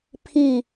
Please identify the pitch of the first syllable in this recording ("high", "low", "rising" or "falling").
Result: falling